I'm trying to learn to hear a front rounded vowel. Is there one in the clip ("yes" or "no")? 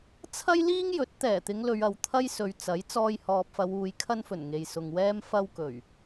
no